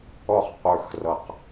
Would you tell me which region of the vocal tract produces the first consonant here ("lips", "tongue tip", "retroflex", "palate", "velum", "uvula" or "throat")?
uvula